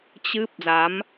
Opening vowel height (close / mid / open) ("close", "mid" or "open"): close